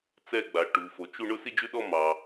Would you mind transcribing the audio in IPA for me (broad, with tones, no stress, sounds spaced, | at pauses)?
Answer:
t͡s ɛ˥˧ ɡ͡b a˩ ʈ u˩ f o˩ t͡ʃ u˥˧ ɳ ʊ˥˧ s i˥˧ d͡ʒ ʉ˥˧ ɗ ɔ˥˧ m ɑ˩